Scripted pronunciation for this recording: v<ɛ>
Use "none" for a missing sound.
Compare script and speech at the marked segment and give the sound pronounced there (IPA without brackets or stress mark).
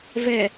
ɛ